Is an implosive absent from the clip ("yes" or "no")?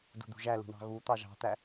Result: yes